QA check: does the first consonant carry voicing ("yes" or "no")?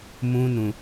yes